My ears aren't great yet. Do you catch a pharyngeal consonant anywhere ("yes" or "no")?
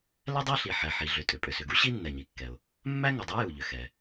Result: yes